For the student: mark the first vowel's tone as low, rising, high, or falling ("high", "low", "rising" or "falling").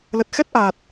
low